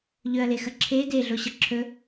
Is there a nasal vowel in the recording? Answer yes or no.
no